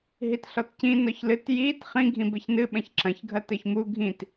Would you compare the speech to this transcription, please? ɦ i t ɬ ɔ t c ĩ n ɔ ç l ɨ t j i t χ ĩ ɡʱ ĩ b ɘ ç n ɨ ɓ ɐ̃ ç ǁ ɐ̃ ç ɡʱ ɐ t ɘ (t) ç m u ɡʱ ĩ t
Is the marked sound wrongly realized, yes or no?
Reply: yes